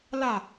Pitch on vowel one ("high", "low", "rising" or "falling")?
falling